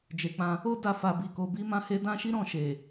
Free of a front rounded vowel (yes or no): yes